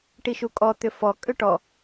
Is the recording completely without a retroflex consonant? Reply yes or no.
no